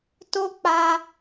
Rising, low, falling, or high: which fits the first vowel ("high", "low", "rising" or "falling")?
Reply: high